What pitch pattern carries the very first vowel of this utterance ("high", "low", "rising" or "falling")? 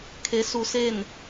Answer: rising